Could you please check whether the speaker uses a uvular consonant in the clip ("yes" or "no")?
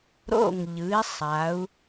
no